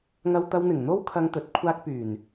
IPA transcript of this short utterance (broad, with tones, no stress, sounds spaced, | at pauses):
ŋ ɐ˧ w t̪ ɐ˧ w n̪ ɪ˨˩ ŋ n̪ o˥ w kʰ ɐ˧ ŋ t̪ ɵ˨˥ t̚ kʷʰ aː˧ k̚ p yː˨˩ n